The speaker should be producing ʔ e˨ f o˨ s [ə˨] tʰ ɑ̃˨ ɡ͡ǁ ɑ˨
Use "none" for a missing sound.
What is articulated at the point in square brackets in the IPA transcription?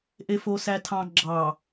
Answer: æ˨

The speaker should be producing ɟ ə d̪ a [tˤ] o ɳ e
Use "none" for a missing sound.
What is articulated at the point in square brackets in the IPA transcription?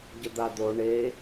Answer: d̪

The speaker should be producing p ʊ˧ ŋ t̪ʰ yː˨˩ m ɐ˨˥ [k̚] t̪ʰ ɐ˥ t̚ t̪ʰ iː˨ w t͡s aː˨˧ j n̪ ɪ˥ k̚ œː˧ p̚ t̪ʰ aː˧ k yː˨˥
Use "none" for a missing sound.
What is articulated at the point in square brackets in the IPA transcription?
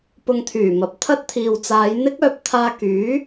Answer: p̚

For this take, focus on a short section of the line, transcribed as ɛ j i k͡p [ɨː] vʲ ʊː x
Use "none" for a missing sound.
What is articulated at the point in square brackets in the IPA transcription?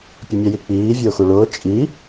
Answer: iː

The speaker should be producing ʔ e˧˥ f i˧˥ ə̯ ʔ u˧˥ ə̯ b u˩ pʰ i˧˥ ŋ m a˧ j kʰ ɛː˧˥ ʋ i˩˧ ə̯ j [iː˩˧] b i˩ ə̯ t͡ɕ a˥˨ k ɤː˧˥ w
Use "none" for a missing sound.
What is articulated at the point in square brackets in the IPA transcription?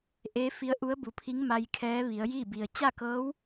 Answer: iː˥˨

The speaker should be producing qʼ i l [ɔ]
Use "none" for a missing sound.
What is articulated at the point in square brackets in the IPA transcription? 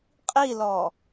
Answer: ɔ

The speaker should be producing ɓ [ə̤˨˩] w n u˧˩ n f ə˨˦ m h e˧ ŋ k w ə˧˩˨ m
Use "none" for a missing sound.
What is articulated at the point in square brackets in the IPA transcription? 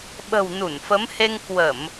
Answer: ə̤˨˩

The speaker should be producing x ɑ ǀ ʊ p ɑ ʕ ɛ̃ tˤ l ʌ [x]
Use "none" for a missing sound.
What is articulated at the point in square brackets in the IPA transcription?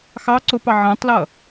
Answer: none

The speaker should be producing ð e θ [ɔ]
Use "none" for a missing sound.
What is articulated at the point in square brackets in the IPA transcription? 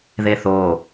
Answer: o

